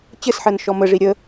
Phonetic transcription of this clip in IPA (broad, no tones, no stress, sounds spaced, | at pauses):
t͡ɕ ɘ s ħ ɜ n ʃ ɔ m ə ʐ i ɾʲ ə